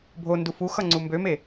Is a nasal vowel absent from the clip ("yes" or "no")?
yes